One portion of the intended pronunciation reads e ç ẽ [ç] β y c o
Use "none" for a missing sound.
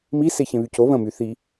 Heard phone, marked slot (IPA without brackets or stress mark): none